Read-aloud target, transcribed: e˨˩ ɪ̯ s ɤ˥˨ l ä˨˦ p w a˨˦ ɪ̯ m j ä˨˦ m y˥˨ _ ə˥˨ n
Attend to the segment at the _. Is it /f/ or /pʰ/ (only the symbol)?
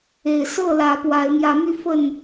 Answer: f